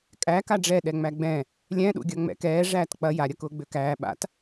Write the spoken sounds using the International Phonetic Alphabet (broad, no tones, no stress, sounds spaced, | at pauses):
kʼ æ k a ɖ͡ʐ ɛ ɗ ɛ ŋ͡m æ ɡ͡b ɛ̃ | lʲ ɛ̃ ɗ ṵ ɡʲ ɐ ŋ͡m ɛ̰ k ɛː ʐ æː t k͡p ɐ j a ɾʲ ɐ k ʊː ɡ͡b ø k æː ɓ a̰ t